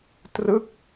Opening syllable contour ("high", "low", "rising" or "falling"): falling